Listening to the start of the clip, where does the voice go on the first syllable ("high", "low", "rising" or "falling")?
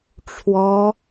high